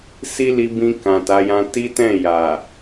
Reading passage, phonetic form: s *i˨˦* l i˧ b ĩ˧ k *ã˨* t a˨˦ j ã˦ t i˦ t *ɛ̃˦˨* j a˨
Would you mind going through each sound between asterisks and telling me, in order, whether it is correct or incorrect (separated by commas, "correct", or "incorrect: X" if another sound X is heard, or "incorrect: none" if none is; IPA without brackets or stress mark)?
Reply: incorrect: i˦, correct, correct